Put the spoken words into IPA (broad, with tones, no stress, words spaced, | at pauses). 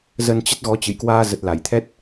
zə˧nt͡ɕə˦˥t̚ ɣɔ˨˦t͡ɕɨ̰˧˨jkwaː˧zə˨˩t̚ la˧˩jt̪ʰɛ˦˥t̚